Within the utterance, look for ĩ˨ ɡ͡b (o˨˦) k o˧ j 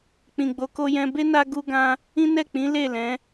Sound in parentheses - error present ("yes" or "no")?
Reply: no